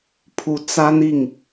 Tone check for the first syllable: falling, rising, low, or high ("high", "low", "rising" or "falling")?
rising